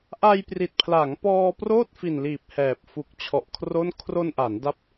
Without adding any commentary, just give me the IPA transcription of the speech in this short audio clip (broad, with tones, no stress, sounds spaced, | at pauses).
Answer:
ʔ a˧ j p r i˨˩ t̚ pʰ l a˩˦ ŋ p ɔː˧ p r oː˥˩ t̚ f i˨˩ n l iː˨˩ p̚ h ɛː˨˩ p̚ f u˨˩ k̚ t͡ɕʰ ɔ˨˩ ʔ kʰ r o˥˩ n kʰ r o˧ n ʔ a˩˦ n d a˦˥ p̚